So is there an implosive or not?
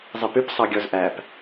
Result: no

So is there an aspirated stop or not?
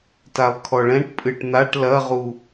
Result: yes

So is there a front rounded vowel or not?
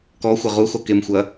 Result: no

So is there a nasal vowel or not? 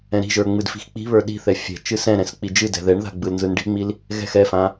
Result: yes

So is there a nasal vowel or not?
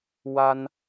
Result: no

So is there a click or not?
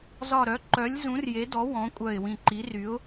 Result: yes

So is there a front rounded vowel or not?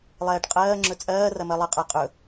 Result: no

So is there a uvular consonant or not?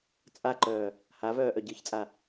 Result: no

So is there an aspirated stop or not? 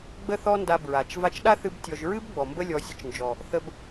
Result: no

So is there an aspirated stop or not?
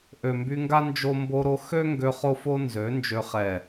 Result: no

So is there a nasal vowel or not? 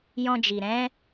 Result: yes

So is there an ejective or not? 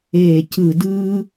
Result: no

